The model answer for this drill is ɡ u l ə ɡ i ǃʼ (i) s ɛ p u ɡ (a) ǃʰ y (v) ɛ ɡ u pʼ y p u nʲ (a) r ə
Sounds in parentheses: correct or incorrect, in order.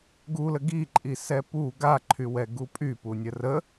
correct, correct, incorrect, incorrect

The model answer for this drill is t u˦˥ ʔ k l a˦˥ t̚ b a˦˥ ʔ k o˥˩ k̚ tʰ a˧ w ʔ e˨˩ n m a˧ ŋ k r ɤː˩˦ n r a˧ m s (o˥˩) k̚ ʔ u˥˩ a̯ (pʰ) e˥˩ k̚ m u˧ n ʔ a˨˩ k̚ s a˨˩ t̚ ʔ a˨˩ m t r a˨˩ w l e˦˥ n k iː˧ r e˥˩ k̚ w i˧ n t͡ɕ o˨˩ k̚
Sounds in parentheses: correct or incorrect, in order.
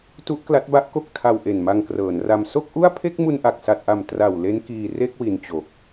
correct, correct

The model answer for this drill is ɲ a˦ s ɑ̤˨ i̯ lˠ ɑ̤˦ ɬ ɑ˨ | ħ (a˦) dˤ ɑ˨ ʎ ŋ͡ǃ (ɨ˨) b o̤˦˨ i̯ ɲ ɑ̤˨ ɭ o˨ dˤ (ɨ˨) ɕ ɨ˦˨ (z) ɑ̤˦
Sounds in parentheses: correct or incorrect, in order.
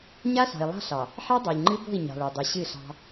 correct, incorrect, correct, incorrect

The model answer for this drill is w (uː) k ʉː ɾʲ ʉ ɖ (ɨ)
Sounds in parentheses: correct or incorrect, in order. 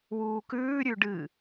correct, correct

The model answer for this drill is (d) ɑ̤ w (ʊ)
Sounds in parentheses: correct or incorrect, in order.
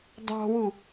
correct, incorrect

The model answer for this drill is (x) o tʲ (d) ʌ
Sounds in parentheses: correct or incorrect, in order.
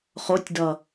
incorrect, correct

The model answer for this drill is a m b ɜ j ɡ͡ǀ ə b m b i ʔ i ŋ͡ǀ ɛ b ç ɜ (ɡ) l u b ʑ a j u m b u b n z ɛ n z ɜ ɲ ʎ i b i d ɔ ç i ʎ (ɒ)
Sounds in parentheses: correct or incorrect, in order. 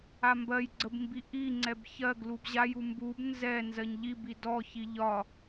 correct, correct

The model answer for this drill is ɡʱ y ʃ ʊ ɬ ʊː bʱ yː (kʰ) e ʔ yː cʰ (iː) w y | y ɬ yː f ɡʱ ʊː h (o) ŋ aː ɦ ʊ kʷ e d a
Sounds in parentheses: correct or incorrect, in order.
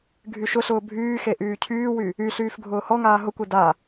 incorrect, incorrect, incorrect

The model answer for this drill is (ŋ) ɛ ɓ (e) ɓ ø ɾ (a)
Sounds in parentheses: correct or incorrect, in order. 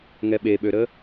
correct, correct, incorrect

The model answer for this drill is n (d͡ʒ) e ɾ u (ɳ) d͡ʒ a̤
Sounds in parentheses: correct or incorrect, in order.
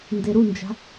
incorrect, incorrect

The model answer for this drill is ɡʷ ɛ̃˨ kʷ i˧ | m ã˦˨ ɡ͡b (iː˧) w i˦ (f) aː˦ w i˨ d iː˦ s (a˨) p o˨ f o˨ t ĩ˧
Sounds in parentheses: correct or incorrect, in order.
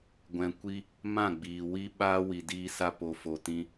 incorrect, incorrect, incorrect

